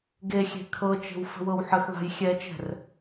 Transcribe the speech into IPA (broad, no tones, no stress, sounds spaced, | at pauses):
ɡ e xʲ e̤ kʰ ɤ t͡ʃ e̤ w f ə̤ w ɤ w ħ ə x ð a̤ j xʲ ɛ t͡ʃ ɛ̤ r